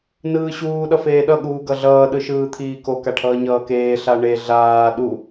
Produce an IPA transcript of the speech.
n ɯː ɕ uː ɗ ʌ f eː ɗ ʌ ɠ uː ɡ ʌ ɮ ʌː ɗ ɯ ʃ ɯː t̪ʰ iː k o k a ʈʰ ʌː ɲ ʌː k eː ɬ a ɳ e ɮ aː ɗ u

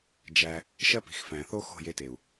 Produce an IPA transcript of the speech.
d͡ʒ æ˧ | ʃ ɜ˦ p i̤˨ x f æ̃˨ θ o˦ x o̤˦˨ j e˧ t e˨ u̯

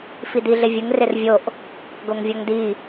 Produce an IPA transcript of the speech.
f i d i ɮ ɪ vʲ ə ŋ r ɪ r vʲ o ʔ | ɡ o ŋ vʲ ɔ ŋ d i

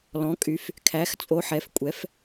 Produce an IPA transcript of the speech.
l ɔ̃˩˧ kʼ y˩˧ f | kʰ æ˩˧ x t͡sʼ o˩˧ ħ ɛ˩˧ f kʷʼ ɛ˩˧ f

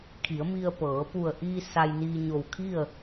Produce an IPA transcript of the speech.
kʰ i˩˧ ə̯ m i˧ ə̯ p ɤː˩˧ p u˧˩ ə̯ ʔ iː˧ s a˧ j n iː˧ ɲ o˧˩ w kʰ i˥˨ ə̯

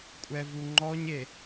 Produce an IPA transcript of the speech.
kʷʼ ɛ v u ŋ͡ǃ ɔ ɲ e

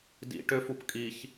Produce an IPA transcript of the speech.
d ḭ ʈ ʏ f u p kʼ i ç

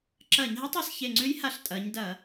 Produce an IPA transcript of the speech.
ǁ ɐː˧˩˧ ɲ ɦ ɛ˧˥ tˤ ɑ˧˩ s ç e˧˩ ŋ͡ǀ ʉ˧˥ j h a˧˩ ɬ tʼ ɐː˩˧ ɲ d ɐː˧˩˧

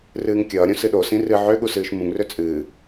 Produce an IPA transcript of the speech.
r ɨː ŋ kʲ ʌː ɾʲ õ s ɨ ɗ o s ĩ r ɨ ʕ ø ɠ u s ɨː ʃ m ũ ŋ r ø t͡sʼ ɨː

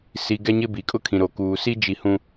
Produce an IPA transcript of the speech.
s i˨ ɡ ɛ˦ ɲ ɪ˦ b i˨ kʼ ʊ˦ kʰ ĩ˨ ɾ o˨ k uː˨ s i˦ d͡ʒ i˦ h ũ˦

